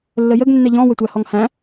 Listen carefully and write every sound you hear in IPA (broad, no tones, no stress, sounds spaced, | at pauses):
lː ə j ə ɡ nː ɛ ʎ ɔ̃ w ə tʷ æ h ɔ ŋ h æ̃